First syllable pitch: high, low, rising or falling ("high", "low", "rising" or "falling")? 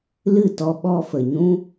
falling